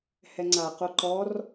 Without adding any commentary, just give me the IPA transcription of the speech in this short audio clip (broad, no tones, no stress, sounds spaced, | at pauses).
h ɛ ŋ͡ǀ a q o ǃ ɔ r